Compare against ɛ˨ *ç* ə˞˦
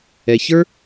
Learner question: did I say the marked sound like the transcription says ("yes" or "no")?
yes